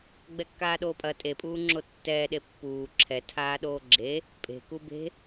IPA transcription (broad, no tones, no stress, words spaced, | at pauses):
ɡ͡bɛkːaːɗoːpʼɐ tʼe pʼuːŋ͡ǁotːɛːɗe pːuː ǁʰɛ tʰaːɗoːɡ͡ǁe | pʼe̤ku be̤